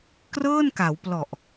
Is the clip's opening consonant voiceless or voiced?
voiceless